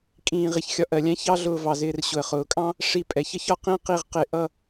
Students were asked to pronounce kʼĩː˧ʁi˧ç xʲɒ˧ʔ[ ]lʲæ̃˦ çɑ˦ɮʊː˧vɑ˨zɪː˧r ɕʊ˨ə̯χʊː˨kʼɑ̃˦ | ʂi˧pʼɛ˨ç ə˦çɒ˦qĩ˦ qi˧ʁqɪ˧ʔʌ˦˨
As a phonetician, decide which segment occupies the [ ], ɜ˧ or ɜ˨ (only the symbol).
ɜ˨